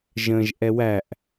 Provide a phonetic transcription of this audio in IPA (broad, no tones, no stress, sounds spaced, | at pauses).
ʒ ə̃ ʒ ʔ ɛ w æ ʔ